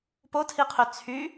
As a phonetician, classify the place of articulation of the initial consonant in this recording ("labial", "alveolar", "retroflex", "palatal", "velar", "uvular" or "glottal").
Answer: labial